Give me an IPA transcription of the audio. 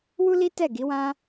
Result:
wu˦li˦tɛ˦˨ ɡi˨˦wã˦

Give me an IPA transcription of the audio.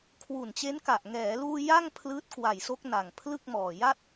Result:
kʰwu˨˩nt͡ɕe˦˥nka˨˩ʔ ŋɛː˩˦luː˧ ja˥˩ŋ pʰlɯː˦˥t̚kwa˨˩jso˦˥k̚ na˨˩ŋ pʰlɯ˥˩k̚mɔː˨˩ ja˦˥t̚

